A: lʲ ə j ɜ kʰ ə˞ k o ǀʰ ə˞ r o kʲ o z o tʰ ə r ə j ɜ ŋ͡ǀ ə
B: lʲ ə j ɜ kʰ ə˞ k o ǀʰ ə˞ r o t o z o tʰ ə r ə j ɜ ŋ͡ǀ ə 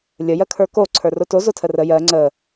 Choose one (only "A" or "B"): B